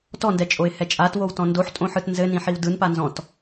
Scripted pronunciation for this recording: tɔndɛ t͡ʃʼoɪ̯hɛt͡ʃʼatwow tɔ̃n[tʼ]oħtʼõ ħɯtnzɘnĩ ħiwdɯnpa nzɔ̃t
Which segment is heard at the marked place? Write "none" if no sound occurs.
d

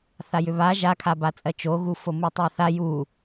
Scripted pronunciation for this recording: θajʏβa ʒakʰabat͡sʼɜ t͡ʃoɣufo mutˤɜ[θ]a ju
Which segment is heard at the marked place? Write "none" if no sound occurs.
θ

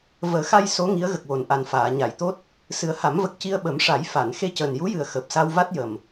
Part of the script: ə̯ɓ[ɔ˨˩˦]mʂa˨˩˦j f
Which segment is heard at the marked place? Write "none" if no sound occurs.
ə˨˩˦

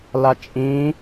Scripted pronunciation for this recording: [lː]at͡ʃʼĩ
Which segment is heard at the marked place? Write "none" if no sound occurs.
l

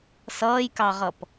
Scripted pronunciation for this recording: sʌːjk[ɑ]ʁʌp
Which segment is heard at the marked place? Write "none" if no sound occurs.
ɑ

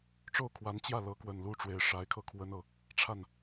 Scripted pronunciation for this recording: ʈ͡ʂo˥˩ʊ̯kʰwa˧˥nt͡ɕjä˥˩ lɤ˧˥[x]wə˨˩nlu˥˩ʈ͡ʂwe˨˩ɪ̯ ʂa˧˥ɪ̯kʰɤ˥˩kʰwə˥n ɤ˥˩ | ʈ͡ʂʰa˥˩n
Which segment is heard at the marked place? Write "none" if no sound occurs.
k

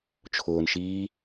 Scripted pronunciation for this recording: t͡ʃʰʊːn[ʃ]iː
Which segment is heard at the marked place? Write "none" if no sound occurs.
ʃ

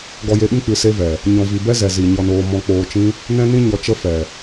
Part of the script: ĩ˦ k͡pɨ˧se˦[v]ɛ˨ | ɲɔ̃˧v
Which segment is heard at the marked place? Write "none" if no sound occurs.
v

